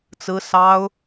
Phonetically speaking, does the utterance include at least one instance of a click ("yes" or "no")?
no